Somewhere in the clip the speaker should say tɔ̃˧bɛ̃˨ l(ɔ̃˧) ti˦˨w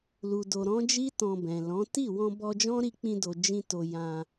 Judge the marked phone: incorrect: ɔ̃˨˦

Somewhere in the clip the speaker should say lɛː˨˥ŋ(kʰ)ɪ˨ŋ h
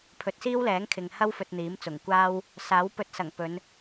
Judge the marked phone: correct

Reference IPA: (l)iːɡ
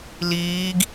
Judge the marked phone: correct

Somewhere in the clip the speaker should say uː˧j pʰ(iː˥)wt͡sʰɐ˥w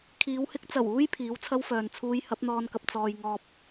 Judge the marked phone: incorrect: iː˨˥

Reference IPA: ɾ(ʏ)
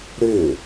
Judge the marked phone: correct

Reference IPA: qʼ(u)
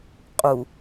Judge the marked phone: correct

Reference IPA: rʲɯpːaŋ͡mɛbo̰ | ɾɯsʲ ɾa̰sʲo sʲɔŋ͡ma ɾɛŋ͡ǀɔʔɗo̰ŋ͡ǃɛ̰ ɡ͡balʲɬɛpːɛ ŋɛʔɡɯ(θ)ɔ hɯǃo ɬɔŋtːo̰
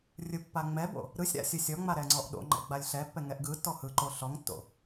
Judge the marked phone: incorrect: tː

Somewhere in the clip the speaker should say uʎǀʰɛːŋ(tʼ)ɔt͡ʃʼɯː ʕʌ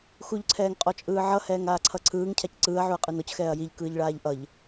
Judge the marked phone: incorrect: qʼ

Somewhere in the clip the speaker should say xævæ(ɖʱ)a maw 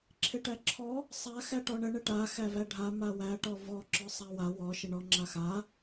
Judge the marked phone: correct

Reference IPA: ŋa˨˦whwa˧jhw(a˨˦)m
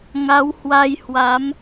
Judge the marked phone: correct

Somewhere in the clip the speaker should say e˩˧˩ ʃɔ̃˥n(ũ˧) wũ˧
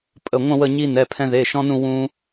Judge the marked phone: incorrect: ũ˥˧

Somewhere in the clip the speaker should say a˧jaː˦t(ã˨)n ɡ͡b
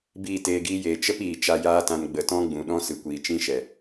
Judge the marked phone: incorrect: ã˧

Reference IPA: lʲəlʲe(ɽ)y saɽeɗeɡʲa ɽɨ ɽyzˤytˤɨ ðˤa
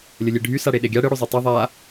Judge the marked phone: incorrect: ɖʱ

